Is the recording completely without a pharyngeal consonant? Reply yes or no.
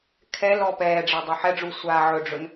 no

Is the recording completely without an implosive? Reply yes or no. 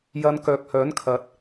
yes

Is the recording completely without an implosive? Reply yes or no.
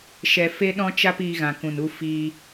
no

